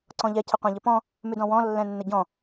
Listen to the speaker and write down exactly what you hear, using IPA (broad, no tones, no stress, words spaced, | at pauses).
ǀɔ̃ʎɛ cʰəqʷãʎəpɔ̃ | mʉdɔ̃wɔ̃ lːɛ̃nːəɟɔ̃